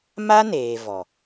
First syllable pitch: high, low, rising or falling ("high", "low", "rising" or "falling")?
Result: high